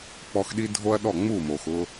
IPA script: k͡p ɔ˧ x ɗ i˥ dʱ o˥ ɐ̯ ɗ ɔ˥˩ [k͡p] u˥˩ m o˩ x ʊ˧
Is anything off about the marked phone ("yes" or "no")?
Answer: yes